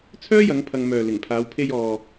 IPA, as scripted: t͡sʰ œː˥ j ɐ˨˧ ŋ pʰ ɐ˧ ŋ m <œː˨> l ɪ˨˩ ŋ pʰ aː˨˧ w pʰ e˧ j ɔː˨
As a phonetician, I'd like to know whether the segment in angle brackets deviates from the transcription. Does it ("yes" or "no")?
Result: no